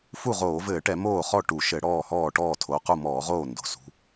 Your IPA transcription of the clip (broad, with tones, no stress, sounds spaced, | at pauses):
f u˥˩ ʁ oː˧˩˧ v ɘː˧˩˧ ʈ ɛ˧˩˧ m oː˥˩ χ ɔ˥˩ ʈ u˧˩˧ ʃ ɘ˧˩˧ ɽ ɔː˥˩ h ɔː˥˩ ʈ ɔː˥˩ tʰ o˩˧˩ q u˥˩ m ɔː˧˩˧ ʁ oː˥˩ n d o̤˩˧˩ s ṳ˩˧˩